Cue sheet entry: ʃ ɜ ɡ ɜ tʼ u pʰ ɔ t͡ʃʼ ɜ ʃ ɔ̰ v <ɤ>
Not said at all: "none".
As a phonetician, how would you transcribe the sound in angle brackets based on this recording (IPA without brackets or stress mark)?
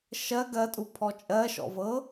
ɤ